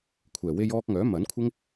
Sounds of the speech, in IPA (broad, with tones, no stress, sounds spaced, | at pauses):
kʷʰ ɛː˨˩ w e˧ j ɔː˧ k̚ ŋ œː˨˥ m ɐ˨˥ n kʷʰ ɪ˥ ŋ